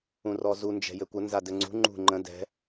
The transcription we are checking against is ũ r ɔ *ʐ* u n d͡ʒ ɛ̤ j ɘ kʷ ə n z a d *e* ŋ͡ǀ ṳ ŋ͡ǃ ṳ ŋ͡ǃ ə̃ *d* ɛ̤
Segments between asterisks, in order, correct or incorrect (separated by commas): incorrect, incorrect, correct